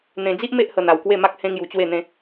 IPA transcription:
n̪ẽ˧d͡zi˦ʔ me˦ʔhə˧ n̪a˧wkwe˥˧ma˦k̚ hẽ˦ŋju˧t͡ɕwe˥˧n̪ẽ˦

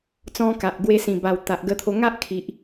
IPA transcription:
t͡sɔ̃˧ka˨ʔ ɡwe˧sĩ˨˩ ba˨˩w t̪a˨ʔɡə˧t̪ʰo˧ ŋa˦ʔkʰi˨ʔ

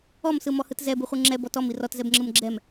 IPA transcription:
ɔmsɯmɔhɯt zɛbɯχʷɯ ŋ͡ǁɛbɔt ɔmi rɔtzɛbŋ͡ǁɯm ɡ͡ǁɛm

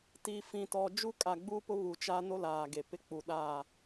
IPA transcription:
tiː˨fĩ˨tɔ˨ d͡ʒu˦kʼa˨ɡ͡buː˦pʊ˦ βu˨t͡ʃaː˦no˦ laː˨ɡe˨ pɪ˦k͡pu˨ɗa˦˨

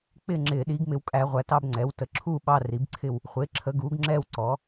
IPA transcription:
k͡pɪ˥˧ŋ͡ǁɪː˨˩˦ ɗiː˩˥ɡmɪ˨˩˦wkʼæ˨˩˦ʁʷæ˩˥ tɑ˥˧bŋ͡ǀɛː˩˥wtə˨˩˦ ǁʰuː˥˧ ɓɑ˥˧ri˩˥bǀʰɪ˥˧w | χʷɪː˩˥ǁʰə˩˥ ɡuː˩˥ɡŋ͡ǁɛː˥˧wǀɔː˩˥

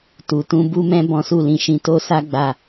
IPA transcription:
tu˨tũ˧ bu˦mɛ̃˦ bɔ̃˦su˦˨lĩ˧ʃĩ˧ to˦sa˦ ɡ͡ba˦˨

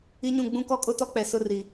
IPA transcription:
i˦ɲũ˦˨ ɡ͡bũ˦kɔ˦kʼʊ˦tɔ˦ k͡pɛ˨sʊ˦ri˨

